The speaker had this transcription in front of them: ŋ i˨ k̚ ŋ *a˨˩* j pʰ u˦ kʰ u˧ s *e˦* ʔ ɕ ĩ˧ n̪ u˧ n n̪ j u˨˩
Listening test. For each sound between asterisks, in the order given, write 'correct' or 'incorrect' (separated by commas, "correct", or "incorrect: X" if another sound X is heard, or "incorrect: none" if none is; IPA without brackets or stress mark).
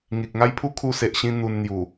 incorrect: a˦, incorrect: e˨